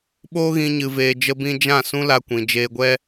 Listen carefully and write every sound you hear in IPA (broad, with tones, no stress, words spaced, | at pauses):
ɓoː˦ɣĩ˧ ɲɨ˨veː˨ d͡ʒə˧bĩ˧ d͡ʒã˦˨ sũ˦la˧kʷĩ˨ d͡ʒeː˧ɡʷɛ˦